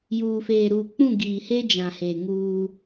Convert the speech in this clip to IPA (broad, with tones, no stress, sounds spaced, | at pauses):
j uː˨ f eː˨ ɾ uː˨ k͡p ũ˦˨ ɡ iː˨ h e˦ d͡ʒ ã˨ h e˨ ŋ uː˦